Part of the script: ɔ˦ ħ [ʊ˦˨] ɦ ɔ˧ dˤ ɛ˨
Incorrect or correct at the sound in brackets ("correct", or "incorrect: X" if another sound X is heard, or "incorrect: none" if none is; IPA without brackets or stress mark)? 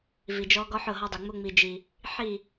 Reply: correct